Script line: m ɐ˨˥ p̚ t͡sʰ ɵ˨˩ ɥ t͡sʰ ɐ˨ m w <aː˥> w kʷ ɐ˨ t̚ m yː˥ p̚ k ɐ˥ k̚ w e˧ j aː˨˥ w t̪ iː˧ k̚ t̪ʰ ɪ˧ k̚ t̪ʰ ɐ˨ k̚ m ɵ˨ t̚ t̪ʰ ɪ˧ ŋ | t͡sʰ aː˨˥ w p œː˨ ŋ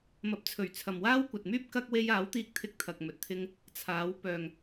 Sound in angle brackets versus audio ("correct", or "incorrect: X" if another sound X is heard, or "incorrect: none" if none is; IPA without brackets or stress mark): correct